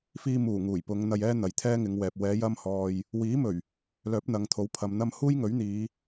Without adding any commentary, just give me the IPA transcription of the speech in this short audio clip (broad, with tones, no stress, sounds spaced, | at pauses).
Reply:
f iː˧ m uː˨˩ ŋ uː˨˩ j p ʊ˨˧ ŋ n̪ ɐ˧ j ɛː˥ n̪ ɐ˨ j t̪ʰ ɛː˥ ŋ ɪ˨˧ ŋ w ɛː˨ p̚ w ɛː˨˧ j ɐ˧ m h ɔː˨ j | w iː˨˥ m ɵ˨˩ ɥ | l œː˨˥ p̚ n̪ ɐ˨˧ ŋ t̪ʰ o˨˥ w pʰ ɐ˨ m n̪ ɐ˥ m h uː˥ j ŋ ɵ˨˥ ɥ n̪ iː˨˧